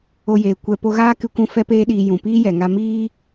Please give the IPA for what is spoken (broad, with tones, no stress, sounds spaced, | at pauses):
o˦ j eː˧ kʷ ɛ˦ p o˧ ɣ aː˦ k ɨ˧ kʷ ũ˧ f ɛ˦ p eː˦ ɗ iː˧ j ũ˨ p iː˦ j ɛ˨ ŋ a˧ m iː˦